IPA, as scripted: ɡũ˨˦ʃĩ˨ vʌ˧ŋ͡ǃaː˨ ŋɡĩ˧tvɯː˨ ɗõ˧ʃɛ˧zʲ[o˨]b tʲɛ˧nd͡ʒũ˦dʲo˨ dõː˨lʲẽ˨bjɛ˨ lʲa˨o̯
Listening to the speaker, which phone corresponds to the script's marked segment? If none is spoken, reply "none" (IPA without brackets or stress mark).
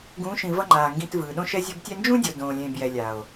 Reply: o˧